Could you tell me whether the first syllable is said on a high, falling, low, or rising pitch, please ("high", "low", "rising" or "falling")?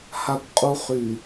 low